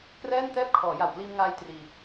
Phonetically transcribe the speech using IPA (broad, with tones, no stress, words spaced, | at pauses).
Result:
krɛː˥˩ntɛː˥˩p̚kʰɔː˩˦ ja˨˩wpliː˧mŋaː˧j triː˧